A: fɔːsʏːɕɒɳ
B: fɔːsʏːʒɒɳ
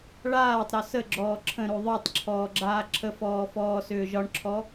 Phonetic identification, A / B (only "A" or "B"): B